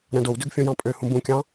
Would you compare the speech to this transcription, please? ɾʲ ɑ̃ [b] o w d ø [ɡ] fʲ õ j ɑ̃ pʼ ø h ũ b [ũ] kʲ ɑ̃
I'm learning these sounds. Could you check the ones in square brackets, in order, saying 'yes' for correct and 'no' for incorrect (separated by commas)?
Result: no, yes, yes